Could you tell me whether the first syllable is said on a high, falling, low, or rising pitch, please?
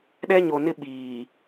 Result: high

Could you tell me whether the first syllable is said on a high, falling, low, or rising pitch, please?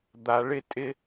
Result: rising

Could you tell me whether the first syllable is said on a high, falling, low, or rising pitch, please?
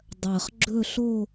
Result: low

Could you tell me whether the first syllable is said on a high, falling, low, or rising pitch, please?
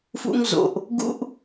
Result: high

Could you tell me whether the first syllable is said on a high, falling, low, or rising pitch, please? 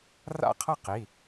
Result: falling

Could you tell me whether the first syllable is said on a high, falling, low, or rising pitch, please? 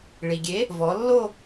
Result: low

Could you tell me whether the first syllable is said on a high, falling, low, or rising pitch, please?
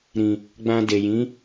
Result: low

